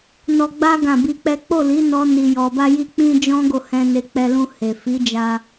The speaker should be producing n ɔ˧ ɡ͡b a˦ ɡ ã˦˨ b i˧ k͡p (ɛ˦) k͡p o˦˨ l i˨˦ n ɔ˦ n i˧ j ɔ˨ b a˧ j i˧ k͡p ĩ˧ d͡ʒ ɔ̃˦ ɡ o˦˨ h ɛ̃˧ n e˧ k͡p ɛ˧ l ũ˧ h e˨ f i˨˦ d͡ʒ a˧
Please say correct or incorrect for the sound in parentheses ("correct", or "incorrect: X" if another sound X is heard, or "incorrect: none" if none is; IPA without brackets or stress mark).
correct